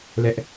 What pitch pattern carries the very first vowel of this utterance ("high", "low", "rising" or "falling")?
high